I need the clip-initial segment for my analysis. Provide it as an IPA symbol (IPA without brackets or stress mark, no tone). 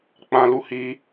k͡p